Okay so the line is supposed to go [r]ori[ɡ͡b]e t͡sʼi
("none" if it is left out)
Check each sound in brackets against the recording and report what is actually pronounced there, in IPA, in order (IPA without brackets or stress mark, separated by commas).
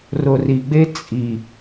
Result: r, ɡ͡b